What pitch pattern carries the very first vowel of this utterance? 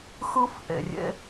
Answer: high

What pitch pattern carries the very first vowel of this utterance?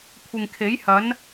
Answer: low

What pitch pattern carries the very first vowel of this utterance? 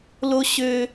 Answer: high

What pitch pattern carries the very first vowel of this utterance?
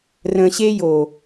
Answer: low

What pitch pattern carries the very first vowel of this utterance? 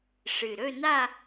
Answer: low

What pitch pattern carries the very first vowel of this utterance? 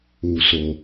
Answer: low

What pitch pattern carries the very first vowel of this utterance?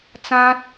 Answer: high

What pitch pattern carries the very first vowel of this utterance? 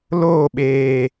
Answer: falling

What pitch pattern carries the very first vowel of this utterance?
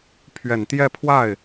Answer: low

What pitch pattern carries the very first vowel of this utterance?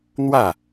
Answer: falling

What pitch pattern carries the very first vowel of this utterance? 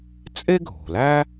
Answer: high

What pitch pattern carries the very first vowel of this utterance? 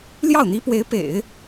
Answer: falling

